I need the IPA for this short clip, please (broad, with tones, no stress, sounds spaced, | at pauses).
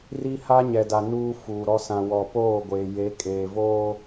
r i˦ h a˦ ɲ ɛ˨ d a˨ n uː˦ f uː˨ ɾ ɔ˦ s ã˨ w ɔ˨ p oː˦˨ ɡʷ eː˨ j e˨˦ kʼ eː˨ v oː˦